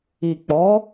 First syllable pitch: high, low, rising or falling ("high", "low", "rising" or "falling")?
low